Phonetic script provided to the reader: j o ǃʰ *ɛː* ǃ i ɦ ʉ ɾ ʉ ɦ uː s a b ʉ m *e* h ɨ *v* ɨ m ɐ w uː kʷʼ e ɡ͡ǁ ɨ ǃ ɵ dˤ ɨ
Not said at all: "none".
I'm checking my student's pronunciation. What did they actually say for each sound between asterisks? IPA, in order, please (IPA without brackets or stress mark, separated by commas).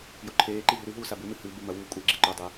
eː, ɨ, b